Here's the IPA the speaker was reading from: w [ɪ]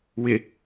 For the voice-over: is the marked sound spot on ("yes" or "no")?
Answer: yes